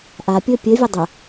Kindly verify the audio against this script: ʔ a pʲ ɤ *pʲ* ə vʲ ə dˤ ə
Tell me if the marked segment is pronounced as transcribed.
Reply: yes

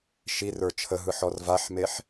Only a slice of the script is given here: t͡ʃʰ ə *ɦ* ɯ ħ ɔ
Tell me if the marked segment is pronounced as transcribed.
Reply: yes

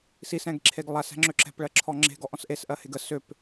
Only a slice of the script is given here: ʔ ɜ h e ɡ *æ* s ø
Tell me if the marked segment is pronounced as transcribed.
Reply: no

